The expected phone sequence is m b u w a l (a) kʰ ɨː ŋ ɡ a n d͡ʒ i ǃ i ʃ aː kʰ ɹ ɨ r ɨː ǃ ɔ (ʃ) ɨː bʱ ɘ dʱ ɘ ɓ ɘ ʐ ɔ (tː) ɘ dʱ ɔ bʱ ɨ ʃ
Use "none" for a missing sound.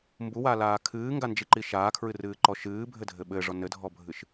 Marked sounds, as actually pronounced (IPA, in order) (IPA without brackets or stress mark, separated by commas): aː, ʃ, n